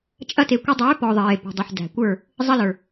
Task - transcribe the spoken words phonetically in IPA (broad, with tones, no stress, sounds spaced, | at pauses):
t͡ʃʼ ɐ˧ t e˨ kʷ ɐ˧ dˤ øː˨˦ p ɔ˨ ðˤ eː˨ p e̤˨ dˤ ɐ˨ ħ d æ̤˨ kʷ ə˞˦˨ | zˤ ɐ˧ l ə˞˨